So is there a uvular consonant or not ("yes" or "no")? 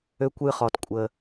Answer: yes